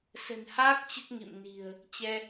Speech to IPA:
s ə̤˨˩ n h aː˦˥ k̚ t͡ɕ ə˦˥ t̚ ŋ ḭ˧˨ m n i̤˨˩ ə̯ | t͡ɕ ɛ˧

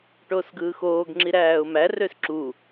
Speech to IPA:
ʈ oː s ɡ ɯː x oː ɡ ŋ͡ǁ i ɾ æː ʊ̯ m æ r ø s ǁ u

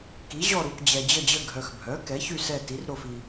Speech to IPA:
k i˩˥ ʑ ɔ˦˨ ɾ u˨ k d͡ʑ ɛ˨ d͡ʑ ə˦˨ d͡ʑ ə˦˨ ɡʱ œ˨ x bʱ œ˩˥ k ɛ˩˥ ç y˦˨ s ɛ˦˨ t i˩˥ r ɾ o˦˨ f i˨

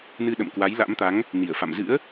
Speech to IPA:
n ɨ˧ ɗ ə̰˧˨ m k w a˨˦ j l a̰˧˥ m t̪ a˨˦ ŋ | n i˧˩ ə̯ f a̰˧˨ m z ɨ̰˧˥ ə̯

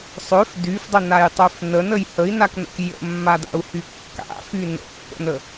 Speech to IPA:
sˤ ø f d y f dˤ ə n a j tˤ ø f n ə n ə j h ə i̯ n a k n ə̰ k j ə̰ mː a d a̰ u̯ h y kː a̰ f y n ə̰ pː ə̰ n ə

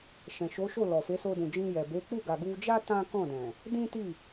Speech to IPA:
ʃ ɛ̃˨ ʃ o˨˦ ʃ o˦˨ l ɔ˨ f e˨˦ s o˧ d ũ˨ d͡ʒ ĩ˧ j ɛ˨ b e˨˦ k͡p u˦˨ ɡ a˨ ɡ u˧ d͡ʒ a˦ t ã˦ k ɔ̃˦˨ d ɛ̃˨ | d ĩ˦ t i˦˨

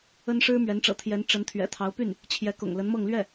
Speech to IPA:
ə˥ n ʂ ɻ̩˥ m ɥ ɛ˧˥ n ʈ͡ʂ ɤ̰˨˩ t̪ʰ j ɛ˧˥ n ʈ͡ʂ ə˧˥ n t̪ʰ ɥ ɛ̰˨˩ t̪ʰ ɑ˧˥ ʊ̯ p y˥˩ n | t͡ɕʰ j ɛ˧˥ k ʊ̰˨˩ ŋ l ə˧˥ n m ɤ˥˧ ŋ l ɥ ɛ˥˩

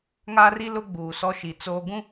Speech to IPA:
ŋ a˦ r i˦ l ʊ˦ ɡ͡b uː˨ s ɔ˦ ʃ i˨ t͡s oː˦ ɡ ũ˦

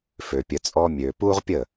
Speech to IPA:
f ø˨ pʲ ə˨ t͡sʼ ɔ˧ mʲ øː˨ p uː˦ ʁ pʲ əː˦˨

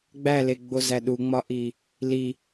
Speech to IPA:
ɡ͡b æ l e ɡ͡b o z æ ɗ u ŋ͡m ɒ ʔ i | l i

